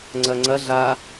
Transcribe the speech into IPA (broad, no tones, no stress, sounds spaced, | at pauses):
ŋ͡ǀ ɐ ŋ͡ǀ ɐ ɮ a